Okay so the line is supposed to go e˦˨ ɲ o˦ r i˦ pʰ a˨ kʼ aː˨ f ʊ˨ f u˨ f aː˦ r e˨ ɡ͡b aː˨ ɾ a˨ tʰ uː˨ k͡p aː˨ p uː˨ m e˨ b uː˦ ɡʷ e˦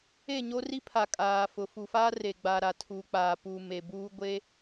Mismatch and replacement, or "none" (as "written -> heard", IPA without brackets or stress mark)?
none